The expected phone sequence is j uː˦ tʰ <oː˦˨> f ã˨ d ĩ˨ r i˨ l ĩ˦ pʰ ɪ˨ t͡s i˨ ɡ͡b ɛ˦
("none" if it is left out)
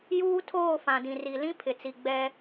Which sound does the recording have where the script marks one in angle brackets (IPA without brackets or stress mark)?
oː˦˨